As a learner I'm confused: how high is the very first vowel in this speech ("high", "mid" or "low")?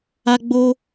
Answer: low